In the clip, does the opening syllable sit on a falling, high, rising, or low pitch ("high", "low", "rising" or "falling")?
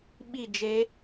falling